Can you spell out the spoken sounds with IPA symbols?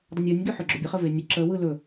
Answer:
dˤ ə nʲ o nʲ ɡ ø ħ ø ɡ͡ǁ ɵ bʲ ə χ ə v e nʲ ə ǁ ə w ɯ l ɵ

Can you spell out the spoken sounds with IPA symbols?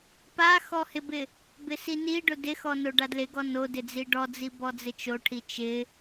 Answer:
p a x ɔ h ɪ b ɪ | b ɪ s i n i ɖ ʊ d ɪ x ɔ n o ɖ a d l ɪ ɡ ɔ n o d ɪ d͡z i ɖ ɔ d͡z i b ɔ d͡z ɪ t͡ʃ o ʈʰ i t͡ʃ ɪ

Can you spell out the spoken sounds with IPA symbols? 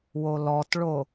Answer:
w o l ɔ t ɭ o

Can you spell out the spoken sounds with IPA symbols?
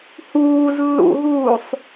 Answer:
h uː z lː ṵ ɦ uː sˤ

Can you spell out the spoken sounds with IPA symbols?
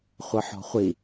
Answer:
χʷ ɘ ħ ɔ̤ χʷ i

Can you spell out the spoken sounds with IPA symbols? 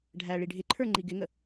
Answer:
ɖʱ æ ɭ i ɖʱ ɪ ǃʰ ə˞ ŋ͡ǃ i ɡ ɪ ŋ ə

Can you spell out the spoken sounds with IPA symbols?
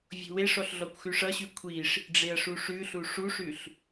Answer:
vʲ o̤ w e ʂ ɔ ɬ ɮ ɔ kʷ x ʉ ʂ ʌ ɕ ʉ kʷʰ i ʂ | ɖ͡ʐ e ɐ̯ ʂ u ʂ ʉ ɬ u ʂ u ʂ ʉ ɬ

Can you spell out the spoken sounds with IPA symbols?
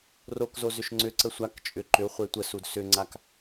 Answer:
r o k z o z ʏ ʃ ŋ͡ǀ ʏ ǀ ə sʷ a k t͡ʃʼ ʏ ǃ ʏ u̯ χʷ e tʷ ə s u d s ʏ ŋ͡ǀ a k

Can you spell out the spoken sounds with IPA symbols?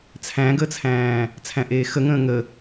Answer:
t͡sʰ æ̃ ɡ əː t͡sʰ æ̃ː | t͡sʰ æ̃ ʔ eː x ə ŋ ə̃ː ŋ ə

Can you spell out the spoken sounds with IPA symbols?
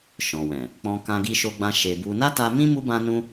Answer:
ʃ ɔ̃˨ w ɛ̃˨ | k͡p ɔ̃˧ k ã˧ ɡ i˧ ʃ o˧ ɡ͡b ã˧ ʃ e˧ b u˧ n a˦ t a˧ m ĩ˦ m u˦ b ã˦ n ũ˦

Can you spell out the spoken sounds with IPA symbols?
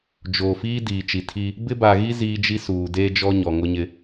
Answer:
d͡ʒ oː˨ f iː˦ d iː˨ t͡ʃ i˨ tʰ i˦ | b ɪ˦ b a˨ ɣ i˦ z iː˦ d͡ʒ i˦ s uː˨ d eː˦ d͡ʒ ɔ˦ ɲ ɔ˨ ŋ ʊ˦ ɲ ɪ˦

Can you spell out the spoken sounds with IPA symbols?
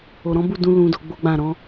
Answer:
o˨ ɾ ɔ̃˨˦ b u˦˨ d ũ˧ l ũ˧ d o˧ ɡ͡b o˦ ɡ͡b ã˦˨ ɾ ɔ̃˨˦

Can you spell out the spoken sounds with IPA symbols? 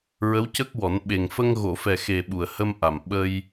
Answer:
ɹ ə˧˥ w c ə˦˥ k̚ w ɔ˨˩˦ n ɓ e˨˩ ŋ f ə˧ ŋ ɣ o˨˩˨ f ɛ˨˩ x e˨˩ ɓ u˨˩ ə̯ h ə˧ m ʔ a˨˩ m ɓ ə˧ j

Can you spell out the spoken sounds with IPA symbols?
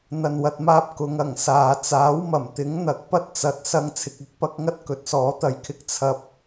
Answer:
n̪ ɐ˨ n w ɐ˨ t̚ m aː˧ p̚ k ʊ˨˧ ŋ ɐ˨˩ ŋ s aː˨˧ t͡s aː˨˥ w m ɐ˨˩ m t̪ ɪ˨˥ ŋ n̪ ɐ˨ k̚ p ɐ˥ t̚ t͡s ɐ˨˥ t̚ s ɐ˧ ŋ t͡sʰ ɪ˨ k̚ ɐ˨˥ k̚ p ɐ˥ k̚ ŋ ɐ˥ t̚ k ɵ˨˥ t̚ s ɔː˨˥ t̪ ɐ˧ j kʰ ɪ˥ k̚ t͡sʰ ɐ˧ p̚

